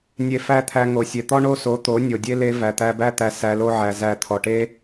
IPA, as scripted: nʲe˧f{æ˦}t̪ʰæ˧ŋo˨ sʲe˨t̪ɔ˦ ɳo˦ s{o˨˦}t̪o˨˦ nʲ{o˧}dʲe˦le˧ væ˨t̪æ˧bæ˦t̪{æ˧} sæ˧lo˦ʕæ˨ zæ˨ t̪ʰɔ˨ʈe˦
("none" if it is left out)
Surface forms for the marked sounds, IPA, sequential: æ˦, o˨˦, o˨, æ˧

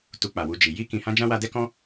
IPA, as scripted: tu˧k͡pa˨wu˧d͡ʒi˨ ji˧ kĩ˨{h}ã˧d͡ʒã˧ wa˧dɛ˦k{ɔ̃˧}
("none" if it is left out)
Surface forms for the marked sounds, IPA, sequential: h, ɔ̃˦

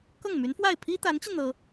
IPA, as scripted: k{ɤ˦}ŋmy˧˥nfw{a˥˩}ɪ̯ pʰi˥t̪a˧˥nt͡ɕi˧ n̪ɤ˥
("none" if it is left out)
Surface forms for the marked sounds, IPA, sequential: ɤ˥˩, a˥˩

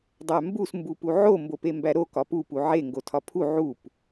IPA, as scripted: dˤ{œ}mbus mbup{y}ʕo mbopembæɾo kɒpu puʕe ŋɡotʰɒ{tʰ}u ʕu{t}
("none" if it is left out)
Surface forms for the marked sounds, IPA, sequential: æ, u, pʰ, p

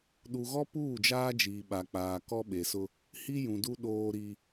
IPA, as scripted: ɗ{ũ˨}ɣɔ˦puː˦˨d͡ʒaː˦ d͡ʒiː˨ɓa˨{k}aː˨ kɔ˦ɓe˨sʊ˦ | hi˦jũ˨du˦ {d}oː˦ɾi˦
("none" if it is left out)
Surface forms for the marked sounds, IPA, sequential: u˨, k͡p, ɗ

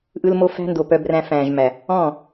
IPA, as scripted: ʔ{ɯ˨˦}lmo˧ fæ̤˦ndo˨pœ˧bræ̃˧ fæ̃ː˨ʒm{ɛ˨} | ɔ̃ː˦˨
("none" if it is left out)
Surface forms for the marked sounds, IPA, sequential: ɯ˧, æ˨

